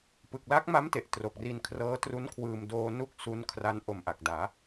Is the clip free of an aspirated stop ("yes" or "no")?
no